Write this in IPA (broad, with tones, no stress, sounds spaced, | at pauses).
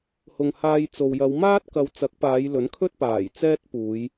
h ʊ˨ ŋ h aː˧ j t͡s o˨ w j ɐ˨˧ w m aː˥ t̚ k ɐ˨˧ w t͡s ɐ˨˥ k̚ p aː˨˧ j l ɵ˨˥ n kʰ ɵ˥ t̚ p aː˨˩ j t͡s ɛː˥ t̚ p uː˨˧ j